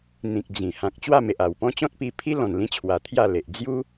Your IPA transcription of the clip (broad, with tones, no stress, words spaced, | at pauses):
n̪ĩ˨k̚ d͡zĩ˨˩ hã˨k̚ t͡ɕwa˥˧me˨ʔa˨˩wpɔ̃˦ t͡ɕɔ̃˦t̚pi˧pʰi˦ lɔ̃˨˩nlĩ˧t͡ɕʰwa˨˩ t̪ʰja˥˧le˨ʔ d͡zju˦